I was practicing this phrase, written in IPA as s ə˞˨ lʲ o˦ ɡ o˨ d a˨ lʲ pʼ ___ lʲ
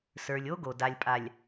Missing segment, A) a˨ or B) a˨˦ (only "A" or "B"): A